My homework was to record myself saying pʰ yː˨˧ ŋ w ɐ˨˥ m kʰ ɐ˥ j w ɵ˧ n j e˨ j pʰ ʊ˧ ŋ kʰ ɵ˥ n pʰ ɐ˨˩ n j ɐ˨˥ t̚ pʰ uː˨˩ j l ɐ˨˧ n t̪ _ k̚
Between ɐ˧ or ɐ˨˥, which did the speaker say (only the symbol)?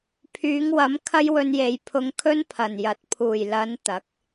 ɐ˨˥